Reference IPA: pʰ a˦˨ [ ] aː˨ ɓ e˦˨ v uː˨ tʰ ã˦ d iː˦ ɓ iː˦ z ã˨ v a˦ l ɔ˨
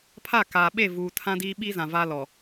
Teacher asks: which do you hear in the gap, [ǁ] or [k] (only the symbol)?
k